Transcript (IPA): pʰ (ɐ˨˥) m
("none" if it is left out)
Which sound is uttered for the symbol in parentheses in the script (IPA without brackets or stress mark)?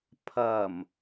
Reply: ɐ˨˩